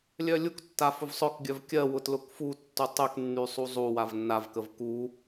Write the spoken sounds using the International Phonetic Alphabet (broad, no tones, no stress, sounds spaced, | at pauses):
lʲ œ lʲ u k tː a f ʊ v sˤ œ k ɡʲ œ v kʲ ɜ w ʊ t l ʊ k f u tː u tˤ y k nː y sˤ u zˤ u w a v nː a v k ə v k u